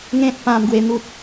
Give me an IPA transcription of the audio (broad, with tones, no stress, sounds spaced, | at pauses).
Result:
ŋ ẽ˦ t̚ p ã˧ m ɡ w e˧ n̪ u˦ t̚